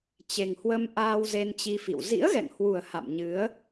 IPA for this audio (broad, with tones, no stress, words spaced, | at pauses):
t͡ɕe˨˩ŋhwə˧m ʔaː˧wze˧nt͡ɕi˧fḭ˧˨w zḭ˧˥ə̯ɣɛ̰˧˨ŋhwu˨˩ə̯ ha̰˧˨mɲɨ˨˦ə̯